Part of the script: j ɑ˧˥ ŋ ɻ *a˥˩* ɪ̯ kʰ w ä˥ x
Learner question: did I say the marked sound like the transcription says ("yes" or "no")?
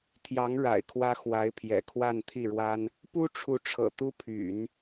no